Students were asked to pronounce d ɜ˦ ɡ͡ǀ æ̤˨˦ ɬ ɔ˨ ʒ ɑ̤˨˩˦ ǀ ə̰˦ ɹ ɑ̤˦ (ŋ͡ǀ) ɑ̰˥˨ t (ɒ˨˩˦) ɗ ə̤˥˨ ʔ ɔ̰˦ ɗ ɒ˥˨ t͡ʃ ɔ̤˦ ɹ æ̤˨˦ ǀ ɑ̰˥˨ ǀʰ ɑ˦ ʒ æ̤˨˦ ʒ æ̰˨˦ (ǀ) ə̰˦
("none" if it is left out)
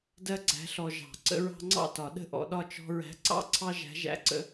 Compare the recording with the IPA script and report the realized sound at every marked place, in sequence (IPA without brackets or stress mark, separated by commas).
ŋ͡ǀ, ɒ˨˩˦, ǀ